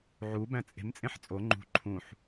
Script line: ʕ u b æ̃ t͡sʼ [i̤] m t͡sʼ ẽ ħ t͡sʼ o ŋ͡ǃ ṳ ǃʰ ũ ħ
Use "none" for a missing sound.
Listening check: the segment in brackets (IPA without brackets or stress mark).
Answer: e̤